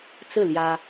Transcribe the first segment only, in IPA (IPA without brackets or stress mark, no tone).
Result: t͡s